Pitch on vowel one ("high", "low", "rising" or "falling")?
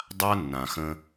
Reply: high